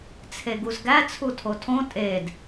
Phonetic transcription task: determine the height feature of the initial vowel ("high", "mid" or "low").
mid